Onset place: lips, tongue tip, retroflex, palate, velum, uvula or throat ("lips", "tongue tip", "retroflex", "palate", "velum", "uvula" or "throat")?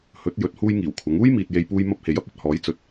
throat